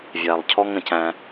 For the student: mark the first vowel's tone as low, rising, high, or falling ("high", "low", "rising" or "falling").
low